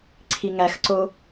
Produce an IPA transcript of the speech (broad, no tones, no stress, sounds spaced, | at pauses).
ǀʰ i ŋ æ x ǀ o